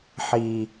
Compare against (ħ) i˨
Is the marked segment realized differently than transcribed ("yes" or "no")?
no